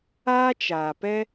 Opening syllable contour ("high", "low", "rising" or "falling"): high